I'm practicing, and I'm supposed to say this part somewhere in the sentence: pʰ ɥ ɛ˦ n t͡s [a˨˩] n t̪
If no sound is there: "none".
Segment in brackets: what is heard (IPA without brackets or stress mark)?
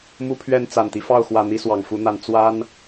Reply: a˨˩